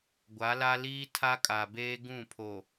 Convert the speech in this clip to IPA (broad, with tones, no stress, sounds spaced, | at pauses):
ɡʷ a˨˦ l a˦ l iː˦ tʰ a˦ kʼ a˨ b eː˦ ɡ ũ˦˨ pʰ o˨